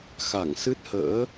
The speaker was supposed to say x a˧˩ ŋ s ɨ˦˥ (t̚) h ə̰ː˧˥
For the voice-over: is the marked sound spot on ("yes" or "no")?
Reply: yes